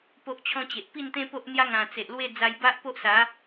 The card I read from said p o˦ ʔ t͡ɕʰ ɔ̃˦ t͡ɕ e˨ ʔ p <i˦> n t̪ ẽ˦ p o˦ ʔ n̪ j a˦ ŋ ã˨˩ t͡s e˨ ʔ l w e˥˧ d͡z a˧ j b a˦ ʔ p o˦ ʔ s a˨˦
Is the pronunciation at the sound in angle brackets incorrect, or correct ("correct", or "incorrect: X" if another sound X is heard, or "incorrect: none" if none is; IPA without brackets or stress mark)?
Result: incorrect: i˥˧